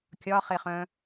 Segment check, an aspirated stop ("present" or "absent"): absent